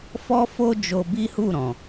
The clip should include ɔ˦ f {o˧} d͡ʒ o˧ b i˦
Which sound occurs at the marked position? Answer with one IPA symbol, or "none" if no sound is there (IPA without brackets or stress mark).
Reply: o˦